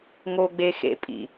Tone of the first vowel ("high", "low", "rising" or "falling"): high